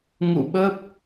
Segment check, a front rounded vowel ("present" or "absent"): absent